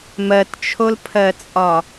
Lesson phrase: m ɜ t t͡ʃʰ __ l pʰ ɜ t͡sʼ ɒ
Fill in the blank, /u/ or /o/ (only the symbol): o